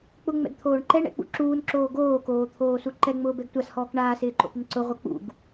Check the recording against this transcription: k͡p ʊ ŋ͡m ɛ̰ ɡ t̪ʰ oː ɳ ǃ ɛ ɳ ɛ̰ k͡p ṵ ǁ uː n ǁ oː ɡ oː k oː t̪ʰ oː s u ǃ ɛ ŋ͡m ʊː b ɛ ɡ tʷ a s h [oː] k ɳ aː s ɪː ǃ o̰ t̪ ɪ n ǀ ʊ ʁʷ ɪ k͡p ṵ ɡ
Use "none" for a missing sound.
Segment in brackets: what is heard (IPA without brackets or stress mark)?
ɔː